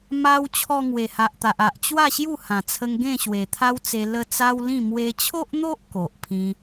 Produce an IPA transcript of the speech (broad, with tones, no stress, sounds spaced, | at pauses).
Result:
m a˧ w t͡ɕʰ ɔ˧ ŋ w e˨˩ h a˨ ʔ t̪ a˨ ʔ a˨ ʔ t͡ɕ w a˥˧ ɕ j u˥˧ h ã˨˩ t͡sʰ ə˧ ŋ ɡ ẽ˥˧ ɕ w e˨˩ t̪ʰ a˦ w t͡s e˧ l ə˧ t͡s a˦ w l ĩ˥˧ m w e˧ t͡ɕʰ o˦ ʔ n̪ o˦ ʔ k o˨ ʔ pʰ ĩ˧